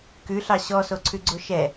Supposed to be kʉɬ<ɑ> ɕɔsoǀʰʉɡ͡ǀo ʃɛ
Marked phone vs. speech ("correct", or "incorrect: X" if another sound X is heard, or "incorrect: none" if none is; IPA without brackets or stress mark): correct